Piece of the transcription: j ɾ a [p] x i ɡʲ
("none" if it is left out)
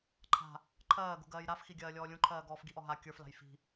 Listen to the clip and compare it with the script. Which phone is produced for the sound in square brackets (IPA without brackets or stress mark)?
f